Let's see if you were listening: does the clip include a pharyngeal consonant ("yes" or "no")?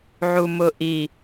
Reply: yes